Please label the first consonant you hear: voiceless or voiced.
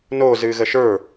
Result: voiced